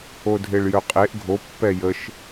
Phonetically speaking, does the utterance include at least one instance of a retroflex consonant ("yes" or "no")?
yes